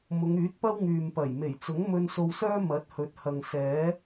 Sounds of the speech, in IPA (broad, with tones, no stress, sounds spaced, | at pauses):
m ʊ˨˧ ŋ yː˨˥ t̚ p ɐ˥ w ŋ yː˨ m p ɐ˨˩ j m e˨˩ j t͡s ʊ˨˥ ŋ m ɵ˧ n s o˧ w s œː˥ m ɐ˨˥ t̚ h ɵ˨˥ t̚ h ɐ˨ ŋ s ɛː˨˥